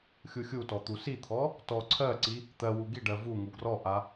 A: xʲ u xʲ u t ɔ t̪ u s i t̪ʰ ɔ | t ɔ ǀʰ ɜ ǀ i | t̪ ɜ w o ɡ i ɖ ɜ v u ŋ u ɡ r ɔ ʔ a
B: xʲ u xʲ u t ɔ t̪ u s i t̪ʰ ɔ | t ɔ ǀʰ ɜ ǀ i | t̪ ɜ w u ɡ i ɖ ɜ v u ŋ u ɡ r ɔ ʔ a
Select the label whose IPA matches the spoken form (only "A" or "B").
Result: B